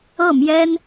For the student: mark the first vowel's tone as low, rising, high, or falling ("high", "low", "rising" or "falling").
falling